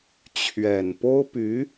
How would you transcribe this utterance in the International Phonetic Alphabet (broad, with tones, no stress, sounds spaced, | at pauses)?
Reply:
t͡ɕʰ ɥ ɛ˨˩ n p o˥ ʊ̯ p y˧˥